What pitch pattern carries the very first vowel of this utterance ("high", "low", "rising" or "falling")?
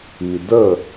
low